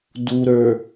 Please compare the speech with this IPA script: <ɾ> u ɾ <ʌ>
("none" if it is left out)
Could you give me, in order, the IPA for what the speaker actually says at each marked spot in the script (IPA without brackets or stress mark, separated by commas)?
d, ə˞